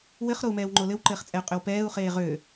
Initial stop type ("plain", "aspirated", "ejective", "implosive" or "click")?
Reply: click